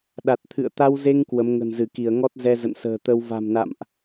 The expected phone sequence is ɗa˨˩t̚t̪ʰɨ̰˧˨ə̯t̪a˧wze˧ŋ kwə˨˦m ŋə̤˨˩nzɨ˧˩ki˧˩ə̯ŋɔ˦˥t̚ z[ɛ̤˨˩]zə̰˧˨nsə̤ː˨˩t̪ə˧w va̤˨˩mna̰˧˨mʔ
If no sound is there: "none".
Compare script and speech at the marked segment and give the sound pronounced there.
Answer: ɛ˧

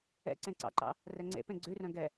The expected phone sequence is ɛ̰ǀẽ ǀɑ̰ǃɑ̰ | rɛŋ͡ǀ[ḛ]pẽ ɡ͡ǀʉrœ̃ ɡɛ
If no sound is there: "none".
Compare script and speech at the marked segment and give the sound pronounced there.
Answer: ḛ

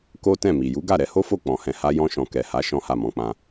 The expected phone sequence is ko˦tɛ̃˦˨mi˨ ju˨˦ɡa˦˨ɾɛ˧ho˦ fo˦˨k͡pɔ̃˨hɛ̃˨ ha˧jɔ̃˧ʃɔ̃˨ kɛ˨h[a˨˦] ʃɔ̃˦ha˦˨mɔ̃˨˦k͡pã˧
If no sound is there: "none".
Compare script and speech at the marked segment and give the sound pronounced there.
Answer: a˨˦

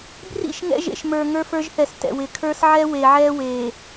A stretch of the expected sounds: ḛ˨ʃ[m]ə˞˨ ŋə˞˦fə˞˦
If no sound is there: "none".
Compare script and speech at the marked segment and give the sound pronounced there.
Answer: m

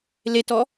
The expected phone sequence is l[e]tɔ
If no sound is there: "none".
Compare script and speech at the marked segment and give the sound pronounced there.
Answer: e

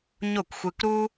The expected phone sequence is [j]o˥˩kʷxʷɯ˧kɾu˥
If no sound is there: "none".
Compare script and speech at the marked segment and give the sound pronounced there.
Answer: ɲ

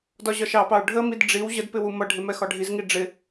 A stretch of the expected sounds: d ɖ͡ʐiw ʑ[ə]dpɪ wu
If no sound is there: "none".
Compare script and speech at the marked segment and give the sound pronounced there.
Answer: ə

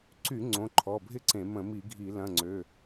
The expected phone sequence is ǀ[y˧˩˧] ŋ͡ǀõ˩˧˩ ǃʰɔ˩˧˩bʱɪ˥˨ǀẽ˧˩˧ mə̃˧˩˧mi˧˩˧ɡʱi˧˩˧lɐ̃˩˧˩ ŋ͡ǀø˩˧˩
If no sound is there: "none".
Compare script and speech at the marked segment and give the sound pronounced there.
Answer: y˧˩˧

